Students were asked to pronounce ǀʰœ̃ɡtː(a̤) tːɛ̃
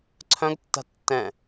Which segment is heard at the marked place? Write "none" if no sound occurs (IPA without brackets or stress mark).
a̤